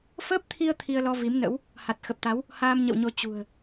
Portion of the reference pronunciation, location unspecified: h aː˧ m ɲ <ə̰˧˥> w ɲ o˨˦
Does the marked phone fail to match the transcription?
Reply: yes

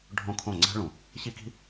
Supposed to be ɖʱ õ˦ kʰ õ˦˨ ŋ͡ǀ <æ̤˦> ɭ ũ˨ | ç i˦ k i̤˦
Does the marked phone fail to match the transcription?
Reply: no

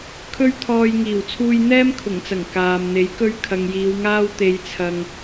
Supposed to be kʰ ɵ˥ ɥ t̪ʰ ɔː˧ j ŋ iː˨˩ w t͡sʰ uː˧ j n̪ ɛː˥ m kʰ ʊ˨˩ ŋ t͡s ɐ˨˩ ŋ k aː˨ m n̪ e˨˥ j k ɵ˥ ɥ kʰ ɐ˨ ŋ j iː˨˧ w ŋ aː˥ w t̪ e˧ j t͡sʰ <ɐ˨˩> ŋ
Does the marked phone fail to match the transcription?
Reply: yes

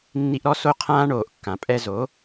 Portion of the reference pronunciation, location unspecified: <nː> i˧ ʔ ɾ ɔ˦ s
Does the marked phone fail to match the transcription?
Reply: no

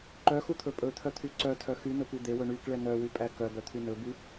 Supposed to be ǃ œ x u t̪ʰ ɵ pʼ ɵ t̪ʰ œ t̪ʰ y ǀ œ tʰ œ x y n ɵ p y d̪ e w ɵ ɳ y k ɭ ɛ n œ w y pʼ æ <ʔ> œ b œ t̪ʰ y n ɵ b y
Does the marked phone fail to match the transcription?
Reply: yes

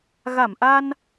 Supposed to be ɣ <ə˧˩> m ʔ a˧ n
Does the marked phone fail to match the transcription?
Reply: yes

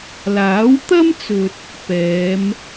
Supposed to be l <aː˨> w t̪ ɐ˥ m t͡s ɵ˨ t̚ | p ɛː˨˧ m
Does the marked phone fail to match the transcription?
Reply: yes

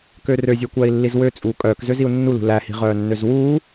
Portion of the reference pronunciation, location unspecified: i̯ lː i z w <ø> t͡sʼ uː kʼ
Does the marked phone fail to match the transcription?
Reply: no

